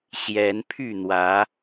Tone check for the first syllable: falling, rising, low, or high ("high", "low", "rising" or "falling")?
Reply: rising